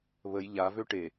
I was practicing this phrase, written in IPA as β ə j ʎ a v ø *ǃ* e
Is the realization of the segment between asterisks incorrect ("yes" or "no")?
yes